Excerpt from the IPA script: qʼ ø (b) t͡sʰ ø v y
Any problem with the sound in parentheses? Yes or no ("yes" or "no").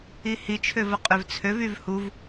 yes